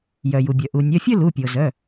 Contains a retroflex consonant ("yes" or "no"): no